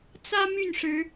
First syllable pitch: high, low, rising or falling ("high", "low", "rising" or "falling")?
high